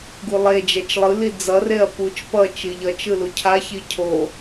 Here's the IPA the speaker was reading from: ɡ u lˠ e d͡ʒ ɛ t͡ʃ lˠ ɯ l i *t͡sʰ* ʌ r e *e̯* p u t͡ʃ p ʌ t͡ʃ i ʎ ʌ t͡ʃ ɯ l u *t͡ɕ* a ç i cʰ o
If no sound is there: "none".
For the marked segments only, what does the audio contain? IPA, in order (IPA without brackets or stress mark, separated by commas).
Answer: d͡z, ɐ̯, cʰ